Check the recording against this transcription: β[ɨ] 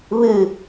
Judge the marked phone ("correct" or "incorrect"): correct